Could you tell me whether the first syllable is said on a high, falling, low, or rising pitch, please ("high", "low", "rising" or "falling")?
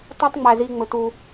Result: high